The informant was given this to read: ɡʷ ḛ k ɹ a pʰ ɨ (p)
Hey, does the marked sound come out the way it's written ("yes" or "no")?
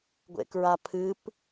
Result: yes